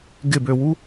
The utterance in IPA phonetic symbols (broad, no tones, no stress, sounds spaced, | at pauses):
ɡ ɪ b ø w u